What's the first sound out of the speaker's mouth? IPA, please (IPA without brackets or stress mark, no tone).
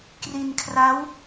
k